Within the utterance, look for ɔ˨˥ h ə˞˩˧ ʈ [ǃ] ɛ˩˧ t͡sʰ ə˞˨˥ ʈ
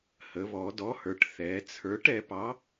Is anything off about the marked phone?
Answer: yes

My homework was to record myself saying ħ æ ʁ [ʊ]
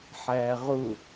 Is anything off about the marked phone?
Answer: no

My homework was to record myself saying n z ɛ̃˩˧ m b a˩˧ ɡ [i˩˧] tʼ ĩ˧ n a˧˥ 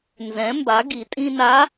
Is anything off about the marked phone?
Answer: no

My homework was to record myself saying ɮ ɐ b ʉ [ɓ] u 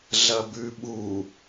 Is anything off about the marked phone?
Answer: no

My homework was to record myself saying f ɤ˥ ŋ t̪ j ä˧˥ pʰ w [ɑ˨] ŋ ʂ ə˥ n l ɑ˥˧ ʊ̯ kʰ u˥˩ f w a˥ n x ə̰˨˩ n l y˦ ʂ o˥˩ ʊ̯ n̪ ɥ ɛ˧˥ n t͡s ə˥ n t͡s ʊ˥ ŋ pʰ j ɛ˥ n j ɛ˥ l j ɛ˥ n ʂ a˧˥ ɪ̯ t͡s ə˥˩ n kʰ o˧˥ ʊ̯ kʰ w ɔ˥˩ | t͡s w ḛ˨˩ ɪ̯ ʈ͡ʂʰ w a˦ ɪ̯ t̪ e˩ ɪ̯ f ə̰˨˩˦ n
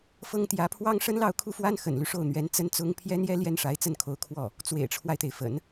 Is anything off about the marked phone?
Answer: yes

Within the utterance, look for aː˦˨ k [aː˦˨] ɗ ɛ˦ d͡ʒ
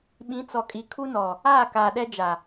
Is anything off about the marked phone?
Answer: yes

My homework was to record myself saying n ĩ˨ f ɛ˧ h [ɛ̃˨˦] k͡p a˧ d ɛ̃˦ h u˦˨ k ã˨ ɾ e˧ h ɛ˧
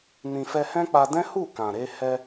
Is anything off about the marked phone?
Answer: yes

